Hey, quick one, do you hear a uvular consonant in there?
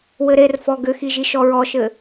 no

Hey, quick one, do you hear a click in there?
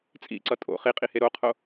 yes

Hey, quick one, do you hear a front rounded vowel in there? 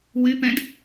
yes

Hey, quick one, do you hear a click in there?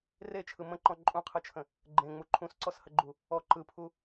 yes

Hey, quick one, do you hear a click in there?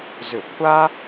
no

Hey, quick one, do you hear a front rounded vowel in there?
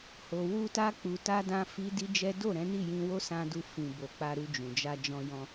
no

